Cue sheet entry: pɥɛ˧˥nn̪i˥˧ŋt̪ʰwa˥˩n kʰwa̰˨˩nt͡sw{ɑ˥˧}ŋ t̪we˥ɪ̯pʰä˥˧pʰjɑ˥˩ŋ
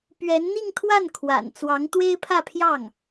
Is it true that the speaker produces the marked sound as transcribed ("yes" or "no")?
no